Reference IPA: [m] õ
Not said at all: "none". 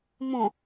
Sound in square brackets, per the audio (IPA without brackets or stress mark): m